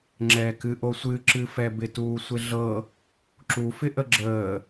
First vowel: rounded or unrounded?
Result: unrounded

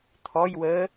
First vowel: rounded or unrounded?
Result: rounded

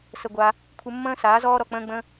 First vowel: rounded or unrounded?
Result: unrounded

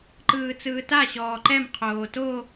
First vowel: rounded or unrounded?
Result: unrounded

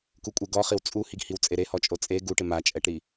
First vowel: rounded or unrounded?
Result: rounded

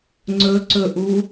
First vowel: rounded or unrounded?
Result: rounded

